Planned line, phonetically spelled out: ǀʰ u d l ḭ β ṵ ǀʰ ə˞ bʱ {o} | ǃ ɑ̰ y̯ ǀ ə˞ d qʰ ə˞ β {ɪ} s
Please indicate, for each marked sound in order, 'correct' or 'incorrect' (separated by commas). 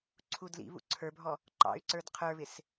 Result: incorrect, correct